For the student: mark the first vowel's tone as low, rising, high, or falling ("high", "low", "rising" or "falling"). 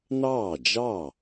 falling